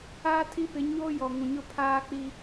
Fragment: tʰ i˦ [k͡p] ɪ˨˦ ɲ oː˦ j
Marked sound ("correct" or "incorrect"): incorrect